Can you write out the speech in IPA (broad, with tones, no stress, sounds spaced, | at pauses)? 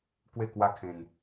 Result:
k w e˥˧ k w a˦ kʰ ẽ˧ n